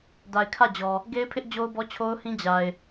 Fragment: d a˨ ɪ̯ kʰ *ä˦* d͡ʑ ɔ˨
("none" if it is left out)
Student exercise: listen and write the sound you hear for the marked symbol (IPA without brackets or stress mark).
ä˦˨